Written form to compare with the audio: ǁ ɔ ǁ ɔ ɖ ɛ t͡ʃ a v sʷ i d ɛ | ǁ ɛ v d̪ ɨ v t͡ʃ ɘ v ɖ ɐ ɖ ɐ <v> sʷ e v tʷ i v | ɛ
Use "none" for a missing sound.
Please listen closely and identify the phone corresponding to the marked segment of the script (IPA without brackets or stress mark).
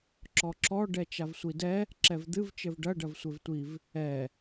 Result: v